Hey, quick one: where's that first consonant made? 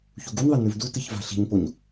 palate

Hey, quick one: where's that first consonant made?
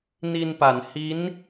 tongue tip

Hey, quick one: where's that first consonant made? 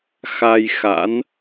velum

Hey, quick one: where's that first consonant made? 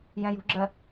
palate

